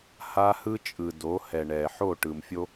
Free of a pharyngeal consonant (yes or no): no